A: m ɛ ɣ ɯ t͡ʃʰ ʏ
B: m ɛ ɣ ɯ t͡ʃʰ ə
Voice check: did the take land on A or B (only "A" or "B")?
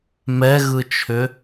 A